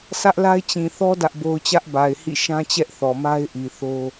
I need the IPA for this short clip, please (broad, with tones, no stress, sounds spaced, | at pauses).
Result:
s ä˦ ʔ l a˦ ɪ̯ t͡ɕ ĩ˨ θ ɔ˦ d ä˦ ʔ b o˦ ʊ̯ t͡ɕ ä˦ ʔ b a˨ ɪ̯ h ḭ˦˨ ʃ ã˦ t͡ɕ ɛ˦ ʔ θ ɔ˨ m a˦ ɪ̯ ʔ i˨ θ o˦